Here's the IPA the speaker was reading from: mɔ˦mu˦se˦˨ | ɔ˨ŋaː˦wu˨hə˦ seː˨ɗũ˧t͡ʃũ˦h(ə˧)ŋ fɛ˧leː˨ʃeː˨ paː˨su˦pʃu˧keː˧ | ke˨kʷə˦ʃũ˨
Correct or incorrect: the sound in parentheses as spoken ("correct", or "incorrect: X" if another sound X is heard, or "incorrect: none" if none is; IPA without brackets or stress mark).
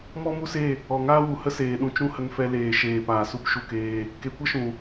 correct